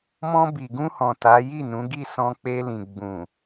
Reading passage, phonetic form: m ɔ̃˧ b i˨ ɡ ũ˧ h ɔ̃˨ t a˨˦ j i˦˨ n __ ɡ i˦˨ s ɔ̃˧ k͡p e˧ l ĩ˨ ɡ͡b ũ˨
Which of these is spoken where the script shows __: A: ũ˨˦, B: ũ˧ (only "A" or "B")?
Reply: A